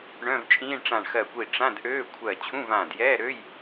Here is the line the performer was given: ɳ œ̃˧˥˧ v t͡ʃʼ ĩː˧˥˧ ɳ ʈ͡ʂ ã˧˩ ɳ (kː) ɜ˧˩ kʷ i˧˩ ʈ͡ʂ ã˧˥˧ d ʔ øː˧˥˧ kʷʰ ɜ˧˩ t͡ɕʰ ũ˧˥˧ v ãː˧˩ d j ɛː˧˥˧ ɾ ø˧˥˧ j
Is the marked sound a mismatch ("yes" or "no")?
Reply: yes